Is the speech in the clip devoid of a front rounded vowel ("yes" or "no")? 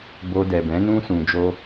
yes